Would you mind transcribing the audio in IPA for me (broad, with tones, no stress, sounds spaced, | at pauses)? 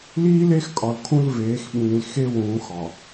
l iː˦ l e˦ x kʼ ɒ˨ l kʰ ũ˦ l v eː˨˦ x ɓ ĩː˨ l x e˦ w ũː˨˦ x ɒ˨